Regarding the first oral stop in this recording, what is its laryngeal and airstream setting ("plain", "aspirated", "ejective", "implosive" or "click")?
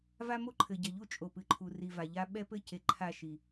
click